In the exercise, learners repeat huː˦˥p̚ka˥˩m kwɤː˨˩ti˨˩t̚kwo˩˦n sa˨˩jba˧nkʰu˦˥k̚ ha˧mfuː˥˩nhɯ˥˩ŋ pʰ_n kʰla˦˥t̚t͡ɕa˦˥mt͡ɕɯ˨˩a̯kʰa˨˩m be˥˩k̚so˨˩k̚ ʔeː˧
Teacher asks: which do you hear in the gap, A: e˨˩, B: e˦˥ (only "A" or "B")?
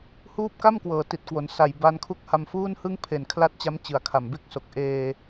A